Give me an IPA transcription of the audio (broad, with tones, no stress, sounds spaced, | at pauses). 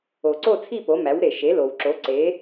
o˩ ǀ o˦˨ t͡sʰ i˦˨ p o˩˥ m æ˩˥ w ɾ e˩ ʃ e˩˥ l o˩ w ǁ o˩˥ ǀ e˩˥